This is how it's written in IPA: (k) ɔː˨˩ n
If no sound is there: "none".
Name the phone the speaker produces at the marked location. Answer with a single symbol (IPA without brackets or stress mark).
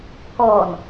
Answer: k